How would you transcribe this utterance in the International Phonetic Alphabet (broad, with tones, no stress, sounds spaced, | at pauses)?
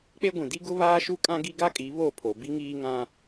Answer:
k͡p e˦ ɡʷ ĩ˨ d i˦ ɡ ʊ˦ β aː˦ ʃ u˦ kʼ ã˦ ɡ i˦ ɡ a˦ kʼ i˨˦ β o˦˨ pʰ o˨ b i˦ ŋ iː˦ ŋ ã˦